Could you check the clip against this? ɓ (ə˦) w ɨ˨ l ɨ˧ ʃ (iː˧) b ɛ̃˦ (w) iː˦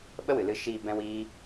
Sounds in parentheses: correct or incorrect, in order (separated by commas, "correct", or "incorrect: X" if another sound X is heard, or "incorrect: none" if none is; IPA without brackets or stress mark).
correct, correct, correct